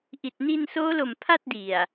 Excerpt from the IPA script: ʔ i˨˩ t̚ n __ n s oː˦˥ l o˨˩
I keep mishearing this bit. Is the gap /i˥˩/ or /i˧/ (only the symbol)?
i˧